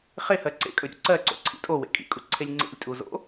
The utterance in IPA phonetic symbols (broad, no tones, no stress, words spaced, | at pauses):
χehɜ ǀḛkʼɵɾʲṵ ǀɜǀo̰ǀʰḭ tʼowḛ kʼḭkʼuǀʰelʲ ŋ͡ǀḛlʲtʼuzo̰